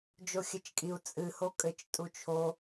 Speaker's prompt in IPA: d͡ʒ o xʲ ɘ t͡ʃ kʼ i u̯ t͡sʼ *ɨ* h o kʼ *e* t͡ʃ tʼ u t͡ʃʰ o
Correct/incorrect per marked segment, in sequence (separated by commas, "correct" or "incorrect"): correct, incorrect